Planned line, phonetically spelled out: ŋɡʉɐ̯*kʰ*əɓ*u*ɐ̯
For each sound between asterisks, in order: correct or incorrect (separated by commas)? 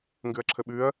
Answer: incorrect, incorrect